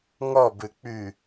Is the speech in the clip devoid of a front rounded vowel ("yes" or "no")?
no